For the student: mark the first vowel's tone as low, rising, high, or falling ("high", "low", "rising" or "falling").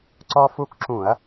high